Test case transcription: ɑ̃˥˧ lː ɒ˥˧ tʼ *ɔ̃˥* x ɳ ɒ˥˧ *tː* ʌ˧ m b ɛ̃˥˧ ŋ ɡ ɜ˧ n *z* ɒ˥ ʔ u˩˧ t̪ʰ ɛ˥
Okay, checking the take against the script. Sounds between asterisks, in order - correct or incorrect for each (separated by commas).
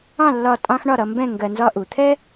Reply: incorrect, incorrect, correct